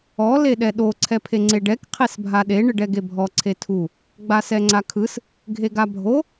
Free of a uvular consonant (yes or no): no